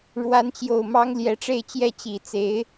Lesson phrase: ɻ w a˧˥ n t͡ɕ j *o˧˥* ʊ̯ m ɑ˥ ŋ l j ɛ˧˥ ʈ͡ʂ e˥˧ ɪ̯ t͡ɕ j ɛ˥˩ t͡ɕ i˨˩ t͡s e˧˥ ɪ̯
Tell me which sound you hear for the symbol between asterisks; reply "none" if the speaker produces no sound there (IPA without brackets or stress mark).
o˨˩